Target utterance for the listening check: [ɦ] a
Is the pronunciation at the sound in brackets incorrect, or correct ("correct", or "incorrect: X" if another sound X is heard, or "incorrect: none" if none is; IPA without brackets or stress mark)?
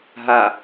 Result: correct